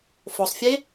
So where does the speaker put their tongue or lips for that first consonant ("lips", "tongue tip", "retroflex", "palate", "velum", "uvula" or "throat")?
lips